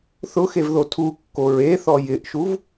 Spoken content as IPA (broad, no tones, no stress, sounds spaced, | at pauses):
θ ʊ x e v ð o tʰ u kː o ɹ e θ ɔ j ɪ ʔ ʃ u v